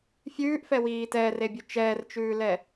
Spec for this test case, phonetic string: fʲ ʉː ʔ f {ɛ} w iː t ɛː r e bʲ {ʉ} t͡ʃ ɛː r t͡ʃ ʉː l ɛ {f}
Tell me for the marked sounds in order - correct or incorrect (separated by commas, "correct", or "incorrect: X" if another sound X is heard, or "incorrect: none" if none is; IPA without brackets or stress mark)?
correct, correct, incorrect: none